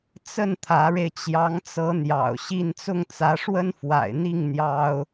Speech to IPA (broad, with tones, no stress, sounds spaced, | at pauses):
t͡s ə˥˩ n t̪ʰ ä˧˥ ɻ e˧ ɪ̯ t͡ɕ j ɑ˧˥ ŋ t͡s ɤ˧˥ n̪ j ɑ̰˨˩ ʊ̯ ɕ i˥˧ n t͡s ʊ˥˩ ŋ t͡s ä˧˥ ʂ w ə˥ n f w a̰˨˩ ɪ̯ n̪ i˥˩ ŋ n̪ j ɑ˥ ʊ̯